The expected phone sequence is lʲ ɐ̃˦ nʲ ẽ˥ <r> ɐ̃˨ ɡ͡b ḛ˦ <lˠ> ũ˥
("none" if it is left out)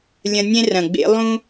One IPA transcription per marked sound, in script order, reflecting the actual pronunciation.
r, lˠ

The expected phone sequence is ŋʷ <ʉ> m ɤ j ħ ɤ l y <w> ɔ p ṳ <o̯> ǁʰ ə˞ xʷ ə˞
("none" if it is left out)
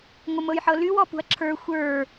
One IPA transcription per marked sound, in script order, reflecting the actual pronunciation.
ə, w, ɐ̯

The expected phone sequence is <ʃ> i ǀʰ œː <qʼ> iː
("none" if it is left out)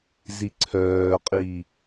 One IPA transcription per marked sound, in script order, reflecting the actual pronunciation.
z, qʼ

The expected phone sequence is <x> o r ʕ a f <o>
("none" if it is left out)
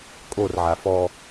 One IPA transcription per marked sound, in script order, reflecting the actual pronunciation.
kʼ, ɔ

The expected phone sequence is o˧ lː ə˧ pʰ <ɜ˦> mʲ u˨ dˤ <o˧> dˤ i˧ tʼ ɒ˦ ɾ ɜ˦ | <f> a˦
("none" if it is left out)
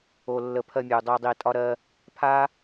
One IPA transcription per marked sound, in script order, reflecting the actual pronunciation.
ɜ˧, o˧, pʰ

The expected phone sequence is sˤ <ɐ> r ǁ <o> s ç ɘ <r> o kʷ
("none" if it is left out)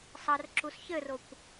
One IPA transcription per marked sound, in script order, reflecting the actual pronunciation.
ɐ, u, r

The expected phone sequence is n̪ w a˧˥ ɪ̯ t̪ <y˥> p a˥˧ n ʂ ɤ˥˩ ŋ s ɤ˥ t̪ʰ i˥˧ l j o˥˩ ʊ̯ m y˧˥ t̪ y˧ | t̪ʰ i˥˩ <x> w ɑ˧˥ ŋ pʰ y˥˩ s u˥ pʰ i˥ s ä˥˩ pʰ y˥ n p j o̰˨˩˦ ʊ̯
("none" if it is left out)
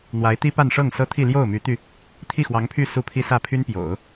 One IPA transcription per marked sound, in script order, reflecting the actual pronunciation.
i˥, x

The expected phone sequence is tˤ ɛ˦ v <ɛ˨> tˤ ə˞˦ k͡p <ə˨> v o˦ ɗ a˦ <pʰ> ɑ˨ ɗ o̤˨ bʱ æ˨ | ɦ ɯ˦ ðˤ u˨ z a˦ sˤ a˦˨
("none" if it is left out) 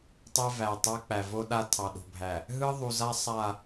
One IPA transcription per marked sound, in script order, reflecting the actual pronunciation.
æ˨, æ˨, tʰ

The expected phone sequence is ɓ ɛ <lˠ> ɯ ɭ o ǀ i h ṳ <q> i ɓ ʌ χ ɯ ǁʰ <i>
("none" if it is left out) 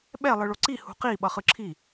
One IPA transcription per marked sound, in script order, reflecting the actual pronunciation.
lˠ, q, i

